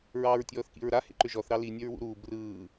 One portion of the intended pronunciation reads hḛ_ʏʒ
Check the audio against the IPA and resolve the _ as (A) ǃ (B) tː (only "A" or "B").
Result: A